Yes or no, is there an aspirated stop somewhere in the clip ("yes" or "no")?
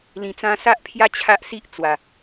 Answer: yes